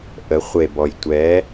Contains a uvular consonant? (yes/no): yes